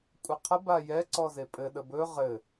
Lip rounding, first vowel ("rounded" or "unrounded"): unrounded